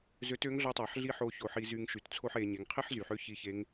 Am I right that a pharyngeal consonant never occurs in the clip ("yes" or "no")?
no